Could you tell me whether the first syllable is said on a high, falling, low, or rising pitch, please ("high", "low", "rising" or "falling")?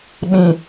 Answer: low